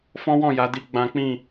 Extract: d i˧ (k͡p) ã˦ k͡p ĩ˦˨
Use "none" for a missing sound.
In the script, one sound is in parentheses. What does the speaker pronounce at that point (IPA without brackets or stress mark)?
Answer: ɡ͡b